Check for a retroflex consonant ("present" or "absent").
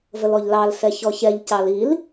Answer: absent